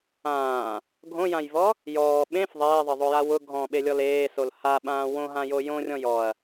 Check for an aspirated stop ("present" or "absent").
absent